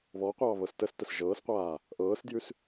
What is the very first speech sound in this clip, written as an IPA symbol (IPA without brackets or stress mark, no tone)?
β